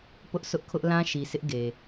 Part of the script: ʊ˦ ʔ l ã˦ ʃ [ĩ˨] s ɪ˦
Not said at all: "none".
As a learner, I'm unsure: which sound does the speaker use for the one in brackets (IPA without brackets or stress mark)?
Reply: i˨